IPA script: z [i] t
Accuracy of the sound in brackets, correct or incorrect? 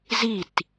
correct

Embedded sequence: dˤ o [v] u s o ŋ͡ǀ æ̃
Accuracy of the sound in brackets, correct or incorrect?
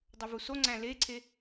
correct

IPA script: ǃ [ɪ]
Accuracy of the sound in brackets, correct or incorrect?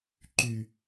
incorrect: y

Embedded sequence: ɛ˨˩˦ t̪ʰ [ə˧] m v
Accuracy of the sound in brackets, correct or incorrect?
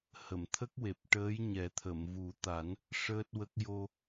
incorrect: ə˨˩˨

